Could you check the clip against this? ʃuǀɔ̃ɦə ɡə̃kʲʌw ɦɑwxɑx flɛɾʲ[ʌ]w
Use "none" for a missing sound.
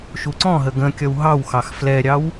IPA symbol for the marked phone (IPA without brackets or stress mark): ɑ